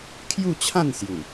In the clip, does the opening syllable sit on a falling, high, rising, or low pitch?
falling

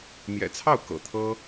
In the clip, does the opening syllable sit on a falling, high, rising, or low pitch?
low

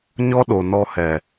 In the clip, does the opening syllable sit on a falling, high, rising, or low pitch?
high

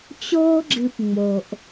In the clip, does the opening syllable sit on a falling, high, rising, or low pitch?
high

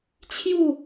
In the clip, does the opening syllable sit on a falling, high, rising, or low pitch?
falling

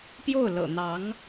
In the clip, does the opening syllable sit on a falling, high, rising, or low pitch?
falling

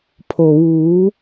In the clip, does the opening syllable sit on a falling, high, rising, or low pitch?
low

